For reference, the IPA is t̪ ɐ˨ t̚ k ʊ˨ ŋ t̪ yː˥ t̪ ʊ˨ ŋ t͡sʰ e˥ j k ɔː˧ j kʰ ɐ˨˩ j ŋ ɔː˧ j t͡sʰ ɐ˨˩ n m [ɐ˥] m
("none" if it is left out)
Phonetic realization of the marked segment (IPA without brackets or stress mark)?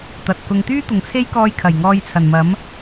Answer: ɐ˨˥